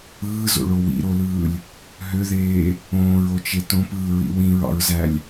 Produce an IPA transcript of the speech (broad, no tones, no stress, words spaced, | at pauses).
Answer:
ɯːzo̰ɭo wḭɾolɯːlʲ | ɦøðeː | õːɹot͡ʃe tõpɯːɹḭ wĩɹɑ̰ɹzælʲ